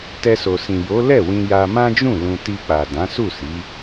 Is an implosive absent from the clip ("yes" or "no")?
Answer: yes